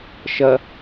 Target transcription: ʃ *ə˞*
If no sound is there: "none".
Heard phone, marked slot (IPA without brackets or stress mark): ɐ